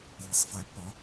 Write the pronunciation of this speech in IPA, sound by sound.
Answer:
l i˧ sˤ f æ˧˥ pː ɒ˧˥

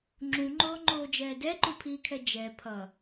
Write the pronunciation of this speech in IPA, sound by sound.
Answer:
ŋ͡ǁ ũ ŋ͡ǃ oː ŋ͡ǃ oː d͡ʒ ɛː d ɛ ǃ u pʰ iː kʰ ɛ d͡ʒ ɛ pʰ ʌ

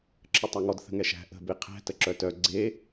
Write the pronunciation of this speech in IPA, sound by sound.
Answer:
ǁʰ ə tˤ a ŋ ɔ d θ ə̤ ŋ ɛ ʃ æ̤ ʔ ə̤ b e qʰ æ̤ t ə ǁ œ t œ ɡ͡ǀ e

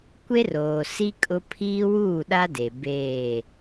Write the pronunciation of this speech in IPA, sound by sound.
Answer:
kʷ e˦ r oː˨ s i˦ kʼ ʊ˦ pʰ iː˦ w uː˦˨ ɗ a˦ d e˨ b eː˦˨

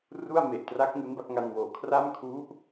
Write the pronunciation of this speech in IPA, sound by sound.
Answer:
r u˥˩ a̯ m e˨˩ ʔ t r a˦˥ k̚ ŋ u˦˥ n b a˥˩ k̚ ŋ a˧ n w oː˩˦ kʰ r a˥˩ m kʰ u˦˥ ʔ

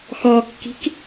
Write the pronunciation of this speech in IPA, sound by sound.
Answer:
x ɔ kː i̤ k

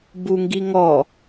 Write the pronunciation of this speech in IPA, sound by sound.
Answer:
b u ŋ ɡ i ŋ ɔ

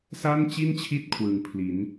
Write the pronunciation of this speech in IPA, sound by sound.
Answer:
s a˥˩ n t͡ɕ i˥˩ n t͡ɕʰ i˦˥ t̚ kʰ w ɯː˨˩ ŋ pʰ l i˩˦ n

